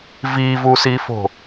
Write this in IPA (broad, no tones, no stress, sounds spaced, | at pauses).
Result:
v i v u s i f o̤